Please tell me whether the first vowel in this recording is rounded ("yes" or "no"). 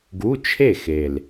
yes